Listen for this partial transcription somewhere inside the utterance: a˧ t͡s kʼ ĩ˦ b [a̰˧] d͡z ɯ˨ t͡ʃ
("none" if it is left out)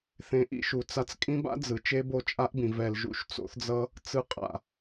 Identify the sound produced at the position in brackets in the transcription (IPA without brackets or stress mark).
a̰˦